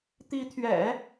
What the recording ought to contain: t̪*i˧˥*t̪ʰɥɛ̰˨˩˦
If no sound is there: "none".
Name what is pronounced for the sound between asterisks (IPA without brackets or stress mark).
i˧˥